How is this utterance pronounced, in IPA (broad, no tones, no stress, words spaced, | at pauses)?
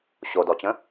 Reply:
ɕodɔt͡ɕə̃